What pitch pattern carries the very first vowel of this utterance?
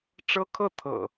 high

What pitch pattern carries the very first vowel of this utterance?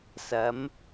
rising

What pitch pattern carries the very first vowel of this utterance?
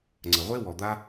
low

